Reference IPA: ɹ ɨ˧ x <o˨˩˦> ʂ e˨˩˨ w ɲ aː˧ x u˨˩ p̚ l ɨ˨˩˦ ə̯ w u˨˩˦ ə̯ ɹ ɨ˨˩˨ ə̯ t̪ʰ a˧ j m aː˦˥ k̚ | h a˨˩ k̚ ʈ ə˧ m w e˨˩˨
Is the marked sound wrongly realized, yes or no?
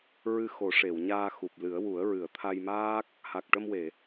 no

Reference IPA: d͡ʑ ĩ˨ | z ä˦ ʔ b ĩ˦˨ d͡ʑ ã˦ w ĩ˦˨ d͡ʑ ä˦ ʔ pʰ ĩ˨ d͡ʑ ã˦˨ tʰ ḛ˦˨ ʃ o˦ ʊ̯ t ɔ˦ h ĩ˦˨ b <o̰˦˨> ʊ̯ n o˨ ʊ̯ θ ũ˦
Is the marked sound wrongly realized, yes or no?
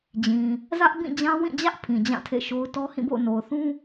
no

